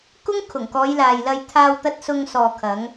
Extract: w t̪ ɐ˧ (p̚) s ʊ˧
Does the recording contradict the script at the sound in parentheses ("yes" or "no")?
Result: yes